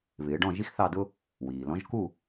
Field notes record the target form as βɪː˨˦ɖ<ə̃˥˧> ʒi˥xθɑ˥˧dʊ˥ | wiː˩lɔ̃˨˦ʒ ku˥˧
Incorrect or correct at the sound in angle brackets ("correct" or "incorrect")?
incorrect